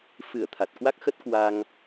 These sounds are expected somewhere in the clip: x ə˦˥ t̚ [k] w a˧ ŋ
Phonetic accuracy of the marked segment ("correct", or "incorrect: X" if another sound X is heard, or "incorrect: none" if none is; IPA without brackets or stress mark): correct